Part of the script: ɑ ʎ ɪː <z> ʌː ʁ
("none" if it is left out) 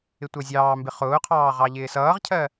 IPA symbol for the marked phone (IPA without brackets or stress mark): s